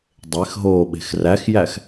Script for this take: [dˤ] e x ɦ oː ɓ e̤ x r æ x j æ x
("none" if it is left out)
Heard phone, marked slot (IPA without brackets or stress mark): dˤ